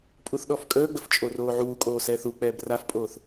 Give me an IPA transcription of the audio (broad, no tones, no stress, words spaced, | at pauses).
pʼuθɗɔfkʼəːɡ͡bəf t͡ʃʼoroːʕuːkʼoː sɛːθuk͡pɛːb rafpʼoːθ